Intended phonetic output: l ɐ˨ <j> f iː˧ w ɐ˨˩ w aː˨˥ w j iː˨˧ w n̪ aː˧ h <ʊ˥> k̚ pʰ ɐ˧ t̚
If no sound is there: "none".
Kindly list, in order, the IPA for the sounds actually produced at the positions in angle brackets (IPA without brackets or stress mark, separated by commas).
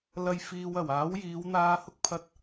j, ʊ˥